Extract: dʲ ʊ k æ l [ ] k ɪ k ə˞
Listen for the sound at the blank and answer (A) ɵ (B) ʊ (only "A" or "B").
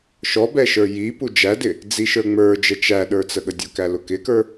B